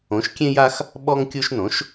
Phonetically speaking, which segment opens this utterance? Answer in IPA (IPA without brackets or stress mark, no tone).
õ